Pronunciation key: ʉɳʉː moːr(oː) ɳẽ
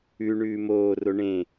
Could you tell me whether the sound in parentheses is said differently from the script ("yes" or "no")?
yes